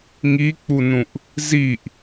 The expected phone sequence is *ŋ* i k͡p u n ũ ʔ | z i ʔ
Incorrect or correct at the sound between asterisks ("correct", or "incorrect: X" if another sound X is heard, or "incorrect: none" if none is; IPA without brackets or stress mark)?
correct